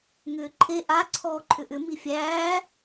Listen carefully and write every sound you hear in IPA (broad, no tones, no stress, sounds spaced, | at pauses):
ŋ ʏː ǃʰ e ʔ a ǀʰ ɔː ǃʰ ʏ ʔ ʏ m i fʲ æː